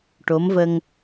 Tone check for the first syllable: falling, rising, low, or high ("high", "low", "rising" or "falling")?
rising